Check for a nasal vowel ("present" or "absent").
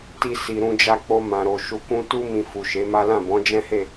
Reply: present